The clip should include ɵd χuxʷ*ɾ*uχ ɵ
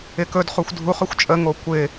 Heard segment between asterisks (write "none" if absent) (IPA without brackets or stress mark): dʱ